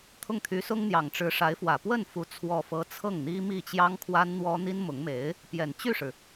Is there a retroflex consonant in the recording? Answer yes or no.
yes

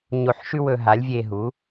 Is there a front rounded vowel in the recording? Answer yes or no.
no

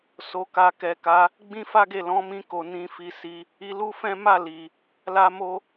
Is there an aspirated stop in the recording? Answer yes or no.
no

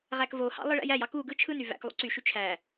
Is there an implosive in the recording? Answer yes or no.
no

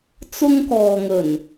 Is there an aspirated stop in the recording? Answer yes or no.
no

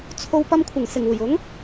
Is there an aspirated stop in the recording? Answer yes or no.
yes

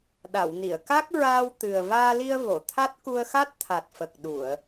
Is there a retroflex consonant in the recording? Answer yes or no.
no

